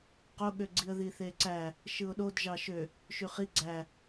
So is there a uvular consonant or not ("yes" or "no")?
yes